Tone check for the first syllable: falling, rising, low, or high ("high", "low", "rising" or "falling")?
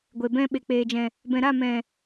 low